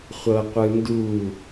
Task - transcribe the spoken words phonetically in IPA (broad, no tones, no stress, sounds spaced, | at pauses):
χʷ ɤ qʷ ɯ n d u